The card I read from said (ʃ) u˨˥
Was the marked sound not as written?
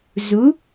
yes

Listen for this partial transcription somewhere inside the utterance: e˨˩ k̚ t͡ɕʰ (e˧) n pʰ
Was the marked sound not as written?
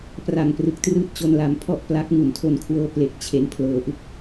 no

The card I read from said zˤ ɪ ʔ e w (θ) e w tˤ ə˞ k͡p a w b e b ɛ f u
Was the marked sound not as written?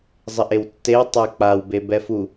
yes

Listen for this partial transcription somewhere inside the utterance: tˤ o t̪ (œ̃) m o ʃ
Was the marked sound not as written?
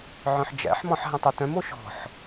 no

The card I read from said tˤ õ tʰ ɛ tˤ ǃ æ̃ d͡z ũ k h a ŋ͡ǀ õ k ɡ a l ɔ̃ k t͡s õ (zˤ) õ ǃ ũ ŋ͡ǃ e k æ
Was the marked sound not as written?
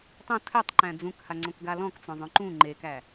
no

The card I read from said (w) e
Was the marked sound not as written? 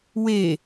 no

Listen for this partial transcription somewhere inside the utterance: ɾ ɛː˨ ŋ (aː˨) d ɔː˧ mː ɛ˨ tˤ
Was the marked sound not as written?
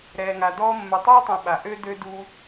yes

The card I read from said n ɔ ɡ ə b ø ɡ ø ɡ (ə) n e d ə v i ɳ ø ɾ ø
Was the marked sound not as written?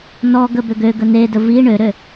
no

